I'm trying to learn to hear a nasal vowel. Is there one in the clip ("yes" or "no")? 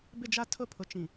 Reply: yes